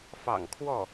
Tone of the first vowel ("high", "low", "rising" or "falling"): low